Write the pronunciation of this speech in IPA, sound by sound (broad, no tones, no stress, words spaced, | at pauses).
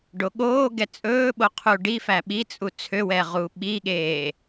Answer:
ɖoɠoːɡɛ t͡sʼɵːɓo qʰuɖifæ ɓit͡sʼu t͡sʰøwɛ ʁuɓiɠeː